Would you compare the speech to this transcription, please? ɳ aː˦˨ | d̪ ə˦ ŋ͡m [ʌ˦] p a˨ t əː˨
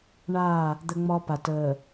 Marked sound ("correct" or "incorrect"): incorrect